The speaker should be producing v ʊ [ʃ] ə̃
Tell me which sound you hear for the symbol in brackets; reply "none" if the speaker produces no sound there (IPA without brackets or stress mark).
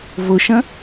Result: ʃ